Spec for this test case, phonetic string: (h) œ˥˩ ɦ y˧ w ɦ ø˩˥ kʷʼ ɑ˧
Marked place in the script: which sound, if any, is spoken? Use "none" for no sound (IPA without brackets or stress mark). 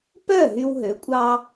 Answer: p